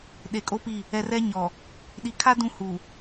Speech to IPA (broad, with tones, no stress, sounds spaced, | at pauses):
ɗ e˨ kʼ o˦ p i˦˨ | ɛ˨ r ɛ˦ ɲ ɔ˨ | ɗ i˨ kʰ a˦ d ũ˦ h u˨